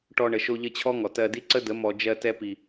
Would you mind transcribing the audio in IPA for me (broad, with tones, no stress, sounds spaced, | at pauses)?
ʈ ɔ˧ ɳ ə˨ ʃ o˧ ʎ ə˧ t͡ɕʰ ɔ˦ ŋ ɔ˨ t ɜ˧ d i˦ ǀ ə˦ d ə˨˦ m ɔ˨ d͡ʒ ɜ˧ t ɛ˧ p i˨